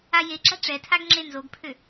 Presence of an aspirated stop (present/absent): present